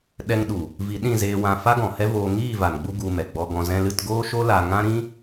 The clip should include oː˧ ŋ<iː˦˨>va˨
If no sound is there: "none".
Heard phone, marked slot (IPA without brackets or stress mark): iː˦˨